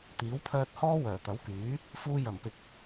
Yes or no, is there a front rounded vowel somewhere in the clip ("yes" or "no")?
yes